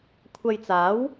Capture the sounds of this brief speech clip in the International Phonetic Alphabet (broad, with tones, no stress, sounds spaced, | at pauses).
kʷʰ ɐ˧ j t͡s aː˨˥ w